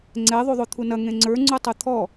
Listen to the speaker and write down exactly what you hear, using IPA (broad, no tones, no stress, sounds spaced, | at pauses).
ŋ͡ǀ ɛ ðˤ u ðˤ o t̪ʰ u n ɐ ŋ ẽ ŋ͡ǀ ə˞ ŋ͡ǀ u tˤ ɯ t̪ʰ ɔ